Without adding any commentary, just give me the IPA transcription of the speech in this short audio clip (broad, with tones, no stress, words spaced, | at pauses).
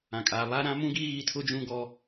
ã˨kʼaː˨βa˦ ɾã˦mũ˦ɡi˦ ɣi˦˨tʰʊ˦d͡ʒũ˦ɡɔ˦